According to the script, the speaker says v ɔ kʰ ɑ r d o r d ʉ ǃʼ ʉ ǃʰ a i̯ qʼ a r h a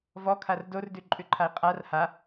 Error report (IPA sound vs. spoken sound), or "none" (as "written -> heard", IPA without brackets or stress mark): ɑ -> a